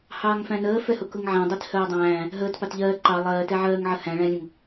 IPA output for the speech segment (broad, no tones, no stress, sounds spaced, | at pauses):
h ɑː ŋ f æ̃ n əː f ɛ h ʊ k ʊ ŋ ʕ æ̃ dˤ i t h ɜː dˤ æ̃ː | ɦ əː t p ɑ t ʎ ɜː ǃ ɑ lˠ ɜː t ɛ ʕ ɜː ŋ ʕ ə h æ̃ ɭ æ̃ lʲ ə̃ ŋ